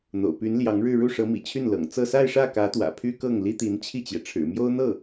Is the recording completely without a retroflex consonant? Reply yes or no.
no